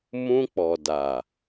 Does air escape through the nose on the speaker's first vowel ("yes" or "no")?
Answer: yes